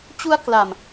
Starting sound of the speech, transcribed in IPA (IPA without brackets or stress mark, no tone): t͡ɕ